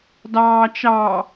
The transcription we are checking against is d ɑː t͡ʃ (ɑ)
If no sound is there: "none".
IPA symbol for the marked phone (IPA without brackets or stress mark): ɑ